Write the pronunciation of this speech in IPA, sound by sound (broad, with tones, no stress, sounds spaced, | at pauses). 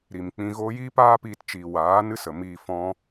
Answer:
ɾ i˨ m k͡p ĩ˧ ɣ oː˦ j iː˦ p aː˦ p iː˧ t t͡ʃ iː˨ w aː˨˦ n ɨ˦ s ə˨ m iː˧ f ɔ̃˦